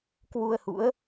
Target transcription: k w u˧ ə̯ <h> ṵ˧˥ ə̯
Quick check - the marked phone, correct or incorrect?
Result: correct